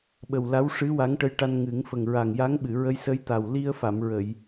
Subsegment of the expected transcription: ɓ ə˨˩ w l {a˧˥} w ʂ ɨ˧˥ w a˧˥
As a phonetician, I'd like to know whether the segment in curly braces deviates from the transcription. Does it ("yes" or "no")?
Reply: no